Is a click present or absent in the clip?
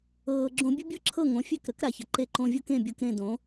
present